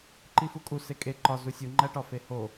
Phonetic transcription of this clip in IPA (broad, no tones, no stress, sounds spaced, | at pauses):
ǃ i f u kʼ u s e kʼ e ǃ ɒ z u sʲ u ŋ͡ǃ æ ʈ ɒ f e h o